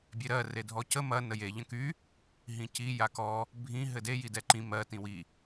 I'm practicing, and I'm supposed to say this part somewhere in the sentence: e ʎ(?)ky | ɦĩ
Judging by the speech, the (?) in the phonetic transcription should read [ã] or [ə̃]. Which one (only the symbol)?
ə̃